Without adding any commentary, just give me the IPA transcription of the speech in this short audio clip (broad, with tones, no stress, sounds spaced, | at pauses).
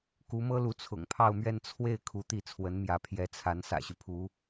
k u˧˥ m ɤ˥ l u˧˥ t͡sʰ ʊ̰˨˩ ŋ pʰ ɑ˥˧ ʊ̯ m ɥ ɛ˥˧ n t͡sʰ w e˥˩ ɪ̯ kʰ u˧˥ t̪ i˥˩ t͡sʰ w ə˧˥ n m j ä˧˥ pʰ j ɛ˧˥ t͡sʰ a˧˥ n s ä̰˨˩ ɕ y˦ pʰ u˧˥